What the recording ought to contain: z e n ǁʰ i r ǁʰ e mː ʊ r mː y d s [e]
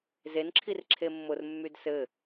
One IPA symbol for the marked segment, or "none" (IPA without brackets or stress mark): ɘ